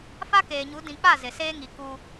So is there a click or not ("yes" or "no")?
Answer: no